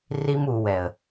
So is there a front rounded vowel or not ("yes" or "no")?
no